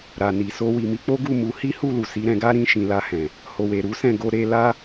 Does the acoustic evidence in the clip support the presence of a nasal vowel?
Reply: yes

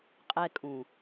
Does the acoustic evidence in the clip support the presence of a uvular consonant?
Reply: yes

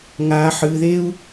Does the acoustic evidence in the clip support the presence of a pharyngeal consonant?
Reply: yes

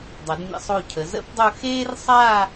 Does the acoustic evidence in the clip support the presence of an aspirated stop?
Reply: yes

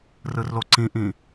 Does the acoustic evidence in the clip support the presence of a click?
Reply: yes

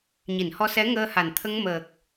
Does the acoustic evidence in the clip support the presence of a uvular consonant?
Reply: no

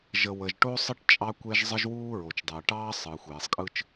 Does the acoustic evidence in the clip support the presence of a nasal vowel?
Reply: no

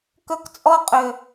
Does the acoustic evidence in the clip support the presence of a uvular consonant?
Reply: yes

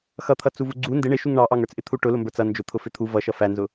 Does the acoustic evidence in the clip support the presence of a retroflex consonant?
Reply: yes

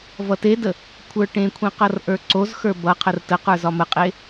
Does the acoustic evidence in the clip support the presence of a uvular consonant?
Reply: yes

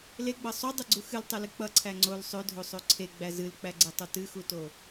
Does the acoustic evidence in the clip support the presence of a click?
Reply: yes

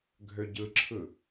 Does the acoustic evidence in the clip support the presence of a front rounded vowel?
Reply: yes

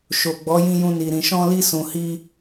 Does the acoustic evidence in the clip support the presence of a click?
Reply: no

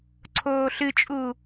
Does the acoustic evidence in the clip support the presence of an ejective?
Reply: yes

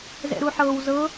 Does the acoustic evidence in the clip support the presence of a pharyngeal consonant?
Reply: yes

